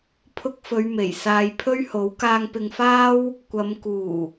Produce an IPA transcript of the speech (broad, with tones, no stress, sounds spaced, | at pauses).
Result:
pʰ ʊ˧ k̚ f ɵ˨˧ ɥ m e˨˩ j s aː˨ j pʰ ɵ˥ ɥ h o˨˥ w k aː˧ ŋ p ɪ˧ ŋ f aː˥ w | kʷ ɐ˨˧ m k uː˨˩